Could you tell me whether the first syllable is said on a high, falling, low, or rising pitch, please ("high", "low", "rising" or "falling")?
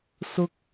high